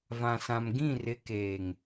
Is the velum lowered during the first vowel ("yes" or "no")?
yes